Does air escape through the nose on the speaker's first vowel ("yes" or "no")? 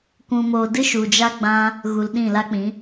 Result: yes